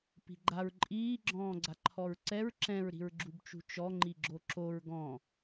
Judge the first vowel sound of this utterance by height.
high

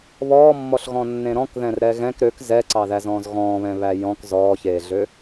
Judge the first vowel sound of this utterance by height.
mid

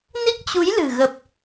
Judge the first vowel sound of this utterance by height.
high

